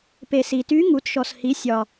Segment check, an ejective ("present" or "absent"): absent